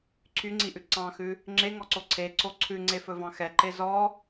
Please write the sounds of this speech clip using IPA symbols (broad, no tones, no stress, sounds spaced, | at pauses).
ǀʰ y ŋ͡ǀ i ʔ ʉ ǀ ɑ̃ x ʉ | ŋ͡ǁ e ŋ ɔ ǀ o ǀʰ e ǀ o ǀʰ ʉ ŋ͡ǀ e f ɵ v ɑ̃ x ɛ ǃ e z ɔ